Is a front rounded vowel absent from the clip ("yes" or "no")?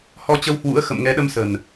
yes